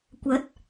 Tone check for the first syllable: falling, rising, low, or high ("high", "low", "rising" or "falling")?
rising